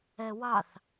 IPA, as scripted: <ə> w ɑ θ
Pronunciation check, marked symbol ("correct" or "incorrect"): incorrect